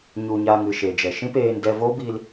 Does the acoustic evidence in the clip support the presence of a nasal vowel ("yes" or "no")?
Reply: yes